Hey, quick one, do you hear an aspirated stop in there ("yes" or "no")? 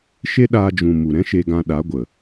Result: no